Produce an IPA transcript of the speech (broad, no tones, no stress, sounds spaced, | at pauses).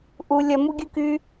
ʔ u lʲ ɐ m u ɡʲ ɯ k y